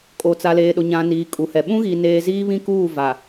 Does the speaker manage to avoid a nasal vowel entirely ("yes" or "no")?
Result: no